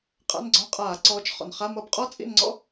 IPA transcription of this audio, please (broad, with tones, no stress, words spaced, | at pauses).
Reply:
qʼa̰˧˥˧nɡ͡ǀɔ̃˧˥˧ qʼaː˧˩˧ǀɔː˨˦t͡ʃ χɔ̰˩nχa˧˥˧mʌ˦˨b qʼɔ˥t͡sʼḭ˦˨nŋ͡ǀɔ̰˥